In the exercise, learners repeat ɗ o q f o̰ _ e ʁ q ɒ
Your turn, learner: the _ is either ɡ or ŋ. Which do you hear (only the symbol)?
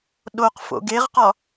ɡ